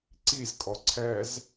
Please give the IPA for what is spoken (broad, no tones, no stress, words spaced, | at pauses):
ǀizkʼɔ ǀʰɛz